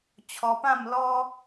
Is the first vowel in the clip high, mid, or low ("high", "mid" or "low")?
mid